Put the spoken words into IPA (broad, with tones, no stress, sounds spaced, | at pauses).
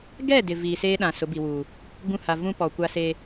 ɡ ɛ˦˨ d ɪ˨ v iː˨ s eː˦ ɗ ã˨ s ʊ˨˦ b i˨ w u˨ | ɡ ũ˦˨ h a˨ v ũ˦ p ɔ˨ kʷ a˦ s e˦